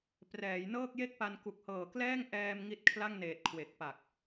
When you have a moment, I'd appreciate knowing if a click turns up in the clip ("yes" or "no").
no